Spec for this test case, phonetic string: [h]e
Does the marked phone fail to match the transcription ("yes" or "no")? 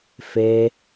yes